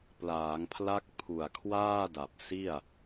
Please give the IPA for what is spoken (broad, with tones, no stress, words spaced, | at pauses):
plaː˩˦ŋpʰla˦˥k̚ pʰu˨˩a̯kʰwaː˥˩da˨˩p̚ si˥˩a̯